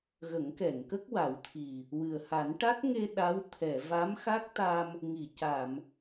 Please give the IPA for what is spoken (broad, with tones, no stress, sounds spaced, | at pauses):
ɣ ə˨˩˦ ŋ k ɛ˨˩˨ ŋ k ə˦˥ k̚ w a˨˩˦ w t̪ʰ i˨˩ | w ɨ˨˩ ə̯ h a˨˩˦ n ʈ a˦˥ t̚ ŋ e˧ ɗ a˧˥ w t̪ʰ ɛ˨˩˨ v a˧˥ m x a˦˥ k̚ t̪ a˧ m | ŋ i˨˩˨ c a˨˩˨ m